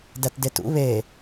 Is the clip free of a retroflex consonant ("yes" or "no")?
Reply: yes